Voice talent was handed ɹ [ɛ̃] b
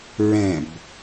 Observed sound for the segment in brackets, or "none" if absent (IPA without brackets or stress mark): ɛ̃